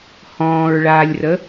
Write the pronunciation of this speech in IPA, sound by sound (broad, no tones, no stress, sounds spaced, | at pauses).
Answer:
h ɔ̃ː ɹ ɭ aː lʲ r ə